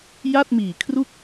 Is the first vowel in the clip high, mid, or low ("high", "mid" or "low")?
low